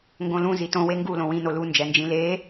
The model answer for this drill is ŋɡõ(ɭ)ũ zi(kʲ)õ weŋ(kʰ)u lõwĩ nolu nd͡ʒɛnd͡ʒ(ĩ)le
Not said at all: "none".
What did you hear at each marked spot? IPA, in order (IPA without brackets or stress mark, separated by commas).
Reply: l, t, ɡ, ĩ